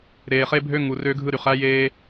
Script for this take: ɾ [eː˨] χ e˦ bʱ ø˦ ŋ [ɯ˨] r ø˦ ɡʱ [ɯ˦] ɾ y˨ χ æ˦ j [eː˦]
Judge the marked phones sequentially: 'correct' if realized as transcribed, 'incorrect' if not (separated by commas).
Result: correct, incorrect, correct, correct